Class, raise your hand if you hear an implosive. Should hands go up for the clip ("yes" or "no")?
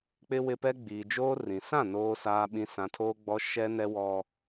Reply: yes